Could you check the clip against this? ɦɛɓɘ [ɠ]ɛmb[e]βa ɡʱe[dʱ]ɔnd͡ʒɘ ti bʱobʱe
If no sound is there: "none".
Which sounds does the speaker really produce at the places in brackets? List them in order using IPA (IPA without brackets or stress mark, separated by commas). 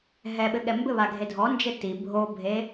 ɠ, ɘ, dʱ